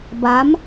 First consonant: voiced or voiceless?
voiced